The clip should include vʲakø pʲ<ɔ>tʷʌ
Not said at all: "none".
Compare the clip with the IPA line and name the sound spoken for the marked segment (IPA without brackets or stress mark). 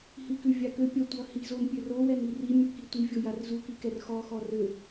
ʌ